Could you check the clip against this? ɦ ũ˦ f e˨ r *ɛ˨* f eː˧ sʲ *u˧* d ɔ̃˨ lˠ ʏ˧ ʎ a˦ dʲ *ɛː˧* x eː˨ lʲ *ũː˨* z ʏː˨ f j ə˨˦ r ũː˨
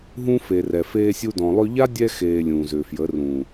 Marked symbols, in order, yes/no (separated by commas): yes, yes, no, yes